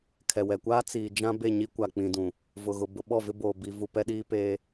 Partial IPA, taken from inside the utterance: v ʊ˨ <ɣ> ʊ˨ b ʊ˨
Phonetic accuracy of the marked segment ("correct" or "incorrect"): correct